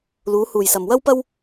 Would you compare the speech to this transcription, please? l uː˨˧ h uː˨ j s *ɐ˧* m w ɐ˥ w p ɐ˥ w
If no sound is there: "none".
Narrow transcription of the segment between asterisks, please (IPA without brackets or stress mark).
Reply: ɐ˨